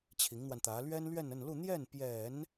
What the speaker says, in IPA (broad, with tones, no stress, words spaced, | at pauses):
t͡ɕʰi˧˥ŋn̪wa˧nt̪ä˧˥ lɥɛ˥nlɥɛ˥˧nə˥˧nlu˥˧ n̪jɛ˥˩npjɛ˨˩˦n